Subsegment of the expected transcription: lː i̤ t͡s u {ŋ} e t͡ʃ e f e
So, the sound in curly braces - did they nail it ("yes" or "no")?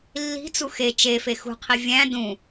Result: no